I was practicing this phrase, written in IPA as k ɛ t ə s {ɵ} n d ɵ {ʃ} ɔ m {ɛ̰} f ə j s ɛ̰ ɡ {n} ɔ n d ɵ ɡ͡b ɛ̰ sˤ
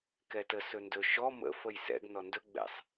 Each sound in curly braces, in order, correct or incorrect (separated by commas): correct, correct, incorrect, correct